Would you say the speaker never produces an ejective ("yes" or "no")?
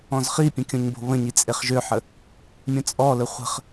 no